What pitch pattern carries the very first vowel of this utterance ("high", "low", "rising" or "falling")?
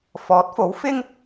rising